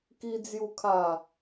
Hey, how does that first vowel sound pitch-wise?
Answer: high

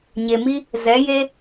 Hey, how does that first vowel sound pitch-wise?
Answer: low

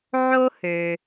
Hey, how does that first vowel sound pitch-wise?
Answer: high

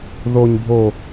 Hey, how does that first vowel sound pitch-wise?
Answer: low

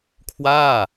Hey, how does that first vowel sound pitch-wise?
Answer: falling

